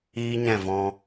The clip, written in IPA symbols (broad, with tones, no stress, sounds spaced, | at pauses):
iː˦ ɲ ɛ̃˦˨ v ɔ̃˧